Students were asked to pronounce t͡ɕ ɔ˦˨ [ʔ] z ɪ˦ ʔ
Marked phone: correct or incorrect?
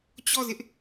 incorrect